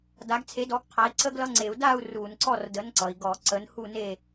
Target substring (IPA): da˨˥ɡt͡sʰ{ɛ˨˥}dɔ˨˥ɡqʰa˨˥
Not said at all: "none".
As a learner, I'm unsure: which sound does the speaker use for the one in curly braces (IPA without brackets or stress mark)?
e˨˥